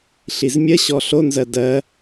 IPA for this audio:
ɬizmʲəɕɔ ɬonzɜ dɜ

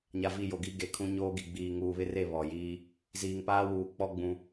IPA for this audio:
ɲa˨vi˦˨jo˨ɡi˦ ɡe˨kʰũ˦ ɲoː˦ɡi˨ ɡ͡biː˨ŋuː˨βɪ˦re˦˨ βɔ˨jiː˦ | ziː˨ŋpaː˦wuː˨ k͡pɔ˦ ɡ͡bũ˦

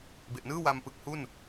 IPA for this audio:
be˨˩ʔnɯː˥˩wa˧m pɯ˨˩k̚hu˥˩n

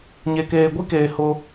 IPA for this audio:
ɲe˨keː˨ɡʷi˦keː˨ hʊ˦

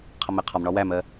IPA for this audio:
qʰʌmɛqʰɒmɳɒ wæmɜ

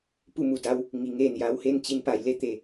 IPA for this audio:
pu˥˨mu˩da˧˥w | ŋi˩˧ŋeː˧˩nja˧˥whe˥˨n t͡ɕi˧npa˩˧jle˥˨t̪e˧˩

